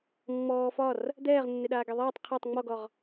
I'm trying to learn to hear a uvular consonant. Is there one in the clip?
yes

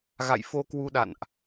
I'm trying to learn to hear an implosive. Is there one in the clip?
yes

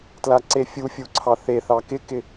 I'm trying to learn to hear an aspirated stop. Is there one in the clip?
yes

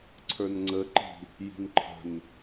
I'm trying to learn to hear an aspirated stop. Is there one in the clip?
yes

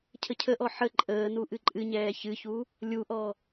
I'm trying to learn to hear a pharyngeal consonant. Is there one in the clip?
yes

